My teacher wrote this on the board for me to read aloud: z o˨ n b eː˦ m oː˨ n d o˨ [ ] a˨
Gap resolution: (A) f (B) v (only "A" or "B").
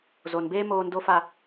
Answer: A